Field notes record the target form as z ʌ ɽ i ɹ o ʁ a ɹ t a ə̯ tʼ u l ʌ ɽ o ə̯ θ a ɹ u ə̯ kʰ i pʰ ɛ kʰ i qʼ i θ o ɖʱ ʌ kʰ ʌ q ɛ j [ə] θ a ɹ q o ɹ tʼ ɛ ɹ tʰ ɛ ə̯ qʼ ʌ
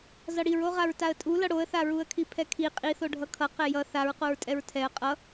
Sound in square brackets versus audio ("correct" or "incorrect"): incorrect